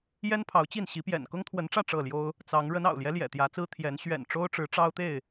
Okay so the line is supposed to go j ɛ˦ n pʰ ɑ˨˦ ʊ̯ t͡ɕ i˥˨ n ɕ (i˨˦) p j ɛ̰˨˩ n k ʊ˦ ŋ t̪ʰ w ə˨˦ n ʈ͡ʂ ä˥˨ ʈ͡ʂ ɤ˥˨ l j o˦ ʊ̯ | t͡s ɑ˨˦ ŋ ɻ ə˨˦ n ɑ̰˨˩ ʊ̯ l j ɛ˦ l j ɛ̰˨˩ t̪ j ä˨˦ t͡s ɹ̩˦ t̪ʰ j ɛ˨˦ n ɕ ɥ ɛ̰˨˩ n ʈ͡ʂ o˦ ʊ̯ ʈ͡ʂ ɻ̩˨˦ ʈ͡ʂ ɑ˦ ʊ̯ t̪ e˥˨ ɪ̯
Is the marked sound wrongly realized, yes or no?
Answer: no